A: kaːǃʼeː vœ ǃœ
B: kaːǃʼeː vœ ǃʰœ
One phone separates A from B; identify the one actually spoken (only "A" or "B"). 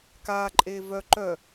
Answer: A